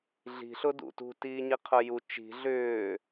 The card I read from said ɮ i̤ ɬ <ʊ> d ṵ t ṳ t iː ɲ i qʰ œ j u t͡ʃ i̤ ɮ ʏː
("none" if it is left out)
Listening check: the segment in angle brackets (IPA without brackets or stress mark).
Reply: ʊ